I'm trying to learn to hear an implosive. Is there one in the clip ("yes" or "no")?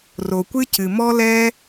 no